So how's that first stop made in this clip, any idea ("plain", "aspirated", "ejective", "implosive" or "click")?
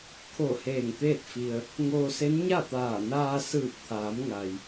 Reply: aspirated